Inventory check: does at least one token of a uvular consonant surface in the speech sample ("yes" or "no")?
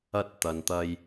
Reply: no